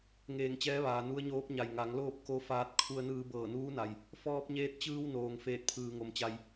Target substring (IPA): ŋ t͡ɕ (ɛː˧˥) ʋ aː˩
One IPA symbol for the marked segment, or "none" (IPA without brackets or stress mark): ɛː˧˥